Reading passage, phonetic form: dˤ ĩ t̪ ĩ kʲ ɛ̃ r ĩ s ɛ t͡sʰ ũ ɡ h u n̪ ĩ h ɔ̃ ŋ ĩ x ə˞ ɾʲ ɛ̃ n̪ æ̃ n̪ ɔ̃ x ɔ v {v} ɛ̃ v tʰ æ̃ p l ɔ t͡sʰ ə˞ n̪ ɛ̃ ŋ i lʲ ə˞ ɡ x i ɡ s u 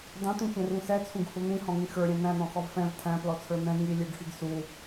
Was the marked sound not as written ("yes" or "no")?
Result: yes